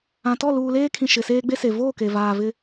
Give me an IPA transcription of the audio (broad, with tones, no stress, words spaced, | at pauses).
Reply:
ã˨tɔ˦˨ luː˨leː˦kʰĩ˨ ʃɪ˨seː˦ɡ͡be˦se˨ voː˦˨ke˨ vaː˨vɪ˦